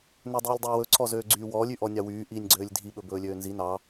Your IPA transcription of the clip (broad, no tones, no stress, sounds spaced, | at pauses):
n ø dˤ iː lʲ dˤ ɵː w ɵ ǀʰ ɔ z øː ɡ͡ǀ yː w ɔː lʲ y ʔ ɔ nʲ ɑ w yː ʔ iː nʲ ɡ͡ǀ øː lʲ dʱ i ɓ ɵ b ɵː lʲ øː n z i n ɑ